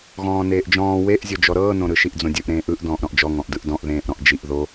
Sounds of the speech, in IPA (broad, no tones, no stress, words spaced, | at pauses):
ɣɔ̃ːneːʔd͡ʒɔ̃ː weʔzʲɔ d͡ʒɔɾɤːnõ ɾɯʃiʔd͡zõdʲɯʔ ɾẽːʔɯʔ dɔ̃ːʔɾɔ̃ʔd͡ʒɔ ŋɔ̃ʔdɯʔdɔ̃ʔ ðẽːʔɾɔ̃ʔd͡ʒiʔ ðo